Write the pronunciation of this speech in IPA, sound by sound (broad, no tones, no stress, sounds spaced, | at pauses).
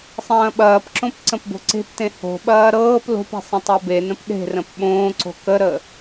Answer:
sˤ ɐ̃ː ɓ ɐː p ǁ õ p ǀ ə̃ p b o̤ ǀ e̤ p t ẽ h o̤ ɓ ɐː ɾ ɤː p l o̤ p e̤ sˤ ə̃ tˤ o b e n ə̃ p ɗ e̤ r ə̃ p ɓ õː ǀ o̤ k ə ɾ ə